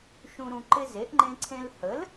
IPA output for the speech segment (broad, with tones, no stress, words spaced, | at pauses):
ʃũ˨ ɾũ˨ ǃɪ˦ze˩˥ʔŋ͡ǃẽ˦ǀʰẽ˦l hə˩˥l